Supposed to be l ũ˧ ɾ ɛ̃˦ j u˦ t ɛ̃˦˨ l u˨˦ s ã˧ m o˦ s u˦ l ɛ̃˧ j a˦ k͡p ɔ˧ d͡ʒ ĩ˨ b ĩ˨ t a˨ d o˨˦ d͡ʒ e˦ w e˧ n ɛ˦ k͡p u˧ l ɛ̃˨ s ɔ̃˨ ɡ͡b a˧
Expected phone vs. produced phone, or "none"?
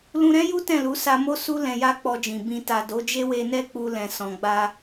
ã˧ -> a˧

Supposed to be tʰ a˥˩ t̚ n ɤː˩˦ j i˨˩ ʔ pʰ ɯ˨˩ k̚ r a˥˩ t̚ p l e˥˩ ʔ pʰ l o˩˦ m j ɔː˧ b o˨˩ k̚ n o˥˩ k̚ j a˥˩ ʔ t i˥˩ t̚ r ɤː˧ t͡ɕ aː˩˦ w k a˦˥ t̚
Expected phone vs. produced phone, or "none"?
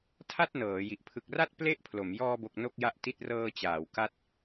none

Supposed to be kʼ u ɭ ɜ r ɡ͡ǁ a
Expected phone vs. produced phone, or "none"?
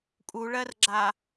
none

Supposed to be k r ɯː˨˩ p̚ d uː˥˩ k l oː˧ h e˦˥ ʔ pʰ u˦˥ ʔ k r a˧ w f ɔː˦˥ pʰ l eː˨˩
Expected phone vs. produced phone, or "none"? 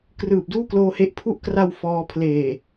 none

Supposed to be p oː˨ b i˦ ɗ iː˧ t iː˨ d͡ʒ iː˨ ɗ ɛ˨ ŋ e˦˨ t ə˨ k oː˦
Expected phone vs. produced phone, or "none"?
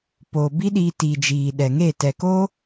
ə˨ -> ɛ˨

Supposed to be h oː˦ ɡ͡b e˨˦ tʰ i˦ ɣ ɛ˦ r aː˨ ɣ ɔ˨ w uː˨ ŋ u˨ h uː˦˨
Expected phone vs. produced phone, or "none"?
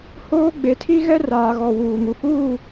none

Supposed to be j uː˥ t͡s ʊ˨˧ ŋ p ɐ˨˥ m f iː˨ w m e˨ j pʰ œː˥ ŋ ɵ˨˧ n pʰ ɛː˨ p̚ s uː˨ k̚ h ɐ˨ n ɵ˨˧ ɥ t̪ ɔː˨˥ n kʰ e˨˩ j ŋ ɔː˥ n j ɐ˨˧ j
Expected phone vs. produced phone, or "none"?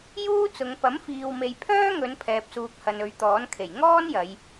none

